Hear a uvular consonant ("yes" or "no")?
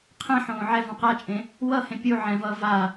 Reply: yes